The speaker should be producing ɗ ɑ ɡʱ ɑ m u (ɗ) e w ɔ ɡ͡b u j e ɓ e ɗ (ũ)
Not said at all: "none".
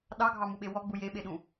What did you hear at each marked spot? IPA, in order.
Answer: ɓ, ũ

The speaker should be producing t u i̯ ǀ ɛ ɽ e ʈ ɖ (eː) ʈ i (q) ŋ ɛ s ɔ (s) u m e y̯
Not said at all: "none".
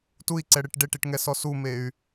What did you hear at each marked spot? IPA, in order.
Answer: e, ʈ, s

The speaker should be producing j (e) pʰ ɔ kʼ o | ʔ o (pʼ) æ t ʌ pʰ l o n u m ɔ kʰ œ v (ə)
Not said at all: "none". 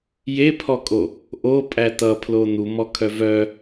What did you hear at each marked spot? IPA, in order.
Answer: e, pʼ, œ

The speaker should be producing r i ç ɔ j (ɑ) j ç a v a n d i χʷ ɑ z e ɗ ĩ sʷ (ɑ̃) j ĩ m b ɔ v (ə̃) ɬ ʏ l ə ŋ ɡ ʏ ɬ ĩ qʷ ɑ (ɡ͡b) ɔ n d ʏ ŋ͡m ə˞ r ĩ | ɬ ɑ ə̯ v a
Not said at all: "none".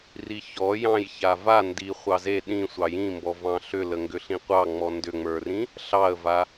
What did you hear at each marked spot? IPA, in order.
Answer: ɑ̃, ɑ, ɑ̃, ŋ͡m

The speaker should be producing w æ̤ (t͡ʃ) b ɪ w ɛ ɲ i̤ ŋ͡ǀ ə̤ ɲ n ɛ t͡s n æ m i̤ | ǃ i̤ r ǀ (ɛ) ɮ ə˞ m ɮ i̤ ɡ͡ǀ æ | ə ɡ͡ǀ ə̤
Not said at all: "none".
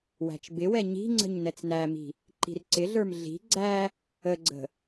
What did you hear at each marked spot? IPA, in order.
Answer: t͡ʃ, ɪ

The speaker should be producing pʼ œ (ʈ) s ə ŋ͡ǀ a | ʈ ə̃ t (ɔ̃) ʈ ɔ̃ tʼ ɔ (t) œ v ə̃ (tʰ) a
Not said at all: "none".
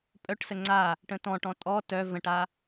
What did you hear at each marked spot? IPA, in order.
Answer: ʈ, ɔ̃, t, ʈ

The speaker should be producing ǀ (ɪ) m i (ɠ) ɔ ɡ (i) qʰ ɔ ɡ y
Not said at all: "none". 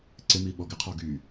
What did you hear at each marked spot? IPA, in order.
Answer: ɪ, ɓ, ɪ

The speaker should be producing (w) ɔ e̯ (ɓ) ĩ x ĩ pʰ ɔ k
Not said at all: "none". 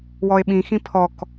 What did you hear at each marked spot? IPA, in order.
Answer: w, ɓ

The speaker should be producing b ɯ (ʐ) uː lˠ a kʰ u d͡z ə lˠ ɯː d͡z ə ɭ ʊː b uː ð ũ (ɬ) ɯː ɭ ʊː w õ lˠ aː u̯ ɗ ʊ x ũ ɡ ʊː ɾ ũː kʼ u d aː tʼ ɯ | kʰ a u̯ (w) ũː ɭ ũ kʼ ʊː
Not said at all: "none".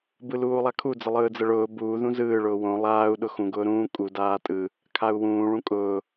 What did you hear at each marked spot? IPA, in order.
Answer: l, z, w

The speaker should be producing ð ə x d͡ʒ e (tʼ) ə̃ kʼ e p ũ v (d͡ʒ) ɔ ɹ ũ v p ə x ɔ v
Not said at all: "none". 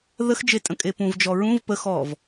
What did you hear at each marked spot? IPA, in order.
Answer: tʼ, d͡ʒ

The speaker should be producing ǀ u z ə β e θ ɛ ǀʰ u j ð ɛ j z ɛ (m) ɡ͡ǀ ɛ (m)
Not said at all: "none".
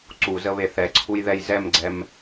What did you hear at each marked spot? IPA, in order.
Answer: m, m

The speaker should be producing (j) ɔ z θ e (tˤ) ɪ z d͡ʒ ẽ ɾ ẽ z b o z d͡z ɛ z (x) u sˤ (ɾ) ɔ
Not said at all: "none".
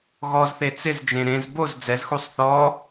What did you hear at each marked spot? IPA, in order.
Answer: ɣ, t͡s, x, θ

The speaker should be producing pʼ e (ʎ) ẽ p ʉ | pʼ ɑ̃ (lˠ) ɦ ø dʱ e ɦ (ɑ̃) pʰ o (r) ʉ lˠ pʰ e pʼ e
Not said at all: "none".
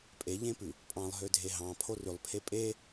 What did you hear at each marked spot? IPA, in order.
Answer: ʎ, lˠ, ɑ̃, r

